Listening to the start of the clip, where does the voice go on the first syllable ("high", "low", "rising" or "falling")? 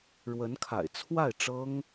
rising